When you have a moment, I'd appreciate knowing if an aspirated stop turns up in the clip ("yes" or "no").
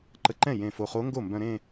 no